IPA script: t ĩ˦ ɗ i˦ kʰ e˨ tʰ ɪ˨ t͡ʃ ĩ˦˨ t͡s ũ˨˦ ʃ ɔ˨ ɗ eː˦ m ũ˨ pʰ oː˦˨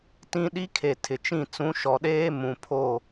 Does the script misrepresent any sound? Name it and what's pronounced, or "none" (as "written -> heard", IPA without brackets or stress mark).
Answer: none